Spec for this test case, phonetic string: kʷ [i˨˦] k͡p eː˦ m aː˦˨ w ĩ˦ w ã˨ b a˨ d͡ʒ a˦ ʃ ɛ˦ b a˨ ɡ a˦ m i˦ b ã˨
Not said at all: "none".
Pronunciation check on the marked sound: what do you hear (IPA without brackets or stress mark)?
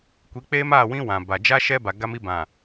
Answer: i˨˦